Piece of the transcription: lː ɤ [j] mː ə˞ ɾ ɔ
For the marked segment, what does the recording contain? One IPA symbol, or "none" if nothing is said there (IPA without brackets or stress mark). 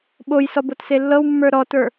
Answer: w